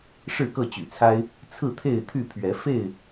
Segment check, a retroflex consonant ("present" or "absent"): present